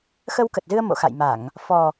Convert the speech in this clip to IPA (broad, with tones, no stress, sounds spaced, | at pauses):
x ə˧ w k ə˨˩ t̚ z ɨ˧ ə̯ m o̰˧˨ x a̰˧˨ j m a˧˩˨ ŋ | f ɔ˨˩